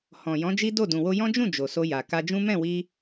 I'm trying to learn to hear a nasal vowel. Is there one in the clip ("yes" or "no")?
yes